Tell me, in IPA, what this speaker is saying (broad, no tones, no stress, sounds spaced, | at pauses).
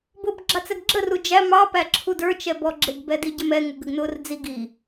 b ʊː b ɡ͡ǁ ɑ t͡s ɛ ɡ ɡ͡ǁ ə r u d͡ʒ æ m ɑ p æ ǁʰ u d ə˞ t͡ʃ ɛ b ɔ ɡ͡ǁ ɪ ɡ b ɛ d i ɟ ə m ɛ ŋ u ɡ ə ɡ n ʊː r d͡z i ɡ i